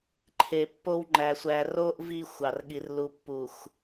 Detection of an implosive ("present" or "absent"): present